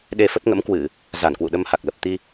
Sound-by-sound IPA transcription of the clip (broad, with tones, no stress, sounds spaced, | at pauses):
ɗ e˧ f ə˦˥ t̚ ŋ ə̰˧˥ m k w ɨ˧˩˨ | z a˧˩ n k w ṵ˧˨ ɗ ə˧ m h a˨˩ k̚ l ə˨˩ p̚ t̪ i˧